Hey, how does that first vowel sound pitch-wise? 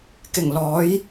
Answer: low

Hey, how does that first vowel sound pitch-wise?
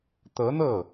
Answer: rising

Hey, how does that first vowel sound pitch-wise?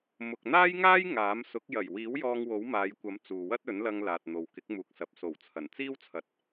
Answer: low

